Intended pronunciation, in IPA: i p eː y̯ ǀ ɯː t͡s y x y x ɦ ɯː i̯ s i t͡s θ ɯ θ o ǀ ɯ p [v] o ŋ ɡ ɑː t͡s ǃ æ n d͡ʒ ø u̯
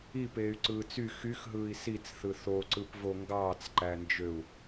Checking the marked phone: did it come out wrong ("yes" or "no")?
no